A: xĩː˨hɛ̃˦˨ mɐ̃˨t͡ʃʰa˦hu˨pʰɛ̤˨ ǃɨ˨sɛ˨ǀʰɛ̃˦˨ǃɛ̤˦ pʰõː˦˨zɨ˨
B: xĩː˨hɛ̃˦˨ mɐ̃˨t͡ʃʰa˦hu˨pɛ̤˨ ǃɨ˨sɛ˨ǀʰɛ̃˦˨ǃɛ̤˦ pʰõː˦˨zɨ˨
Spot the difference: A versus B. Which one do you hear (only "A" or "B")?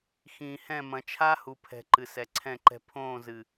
A